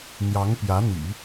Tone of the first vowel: rising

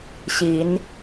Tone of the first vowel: rising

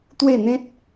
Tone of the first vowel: falling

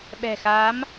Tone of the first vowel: low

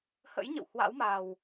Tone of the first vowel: rising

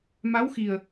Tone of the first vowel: rising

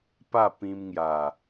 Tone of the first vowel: falling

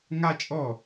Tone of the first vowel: high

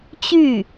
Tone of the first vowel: falling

